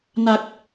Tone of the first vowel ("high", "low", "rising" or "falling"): low